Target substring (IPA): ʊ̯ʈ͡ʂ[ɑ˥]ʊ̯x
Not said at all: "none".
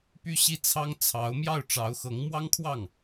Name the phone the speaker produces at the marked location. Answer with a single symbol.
ɑ˧˥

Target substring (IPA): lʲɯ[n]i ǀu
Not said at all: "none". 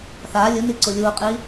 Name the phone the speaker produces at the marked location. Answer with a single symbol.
n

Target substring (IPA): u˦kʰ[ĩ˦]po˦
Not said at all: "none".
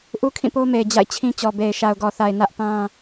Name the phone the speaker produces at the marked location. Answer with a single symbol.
ĩ˦˨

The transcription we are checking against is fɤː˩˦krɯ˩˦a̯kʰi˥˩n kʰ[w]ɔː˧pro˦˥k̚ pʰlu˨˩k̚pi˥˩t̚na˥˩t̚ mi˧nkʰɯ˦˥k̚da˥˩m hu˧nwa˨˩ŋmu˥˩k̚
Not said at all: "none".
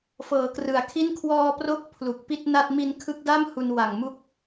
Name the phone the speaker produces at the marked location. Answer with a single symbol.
w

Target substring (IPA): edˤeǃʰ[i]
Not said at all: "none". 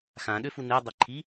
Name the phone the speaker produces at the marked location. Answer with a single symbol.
i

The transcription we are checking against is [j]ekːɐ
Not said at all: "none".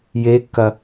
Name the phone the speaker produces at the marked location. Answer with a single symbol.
j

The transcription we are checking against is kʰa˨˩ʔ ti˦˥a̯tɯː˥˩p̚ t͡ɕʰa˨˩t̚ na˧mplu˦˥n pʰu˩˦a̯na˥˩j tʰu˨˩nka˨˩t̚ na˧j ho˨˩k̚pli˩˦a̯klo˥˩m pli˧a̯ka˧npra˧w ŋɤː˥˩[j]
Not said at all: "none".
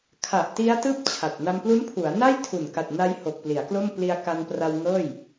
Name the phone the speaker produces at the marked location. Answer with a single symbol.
j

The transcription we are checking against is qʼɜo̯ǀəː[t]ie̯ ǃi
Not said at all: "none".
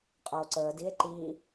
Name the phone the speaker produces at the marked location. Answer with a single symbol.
d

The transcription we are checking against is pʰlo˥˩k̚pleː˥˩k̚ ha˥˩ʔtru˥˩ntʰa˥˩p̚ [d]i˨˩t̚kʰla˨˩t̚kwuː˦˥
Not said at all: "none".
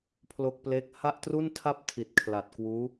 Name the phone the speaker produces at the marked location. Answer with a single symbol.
tʰ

